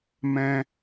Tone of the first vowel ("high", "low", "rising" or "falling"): high